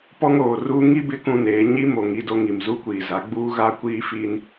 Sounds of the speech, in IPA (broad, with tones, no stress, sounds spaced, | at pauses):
p ɔ˦ ŋ oː˨ r uː˦ ŋ i˦ b ɪ˦ k ũ˦ n eː˨˦ ɲ i˦ m o˨ ŋ i˦ d o˦ ŋ i˨ m z u˦ kʷ iː˨ z a˨˦ ɡ͡b uː˦ ɣ a˦ kʷ iː˦ f i˦ n